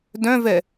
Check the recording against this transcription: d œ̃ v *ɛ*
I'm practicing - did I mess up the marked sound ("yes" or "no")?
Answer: no